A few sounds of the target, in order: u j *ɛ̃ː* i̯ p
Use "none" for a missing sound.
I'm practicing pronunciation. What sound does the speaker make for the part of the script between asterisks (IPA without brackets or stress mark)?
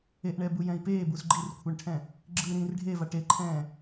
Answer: ɛ̃